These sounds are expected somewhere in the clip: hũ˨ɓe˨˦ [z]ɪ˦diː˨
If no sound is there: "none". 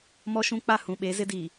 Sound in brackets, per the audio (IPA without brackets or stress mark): z